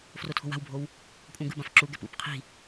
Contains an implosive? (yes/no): no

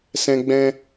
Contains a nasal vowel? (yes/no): yes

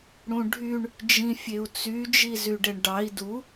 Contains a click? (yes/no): no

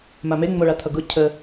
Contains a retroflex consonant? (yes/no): yes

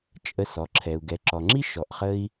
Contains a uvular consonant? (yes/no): yes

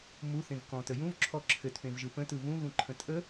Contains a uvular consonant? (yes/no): no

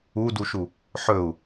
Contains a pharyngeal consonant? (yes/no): yes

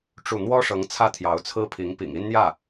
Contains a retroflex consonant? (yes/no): yes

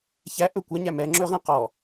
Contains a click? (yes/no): yes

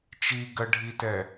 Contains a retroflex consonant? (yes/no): yes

